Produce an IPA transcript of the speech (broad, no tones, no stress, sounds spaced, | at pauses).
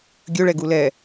ɡʲ ɵ ɭ ɛ ɡ u l ɛ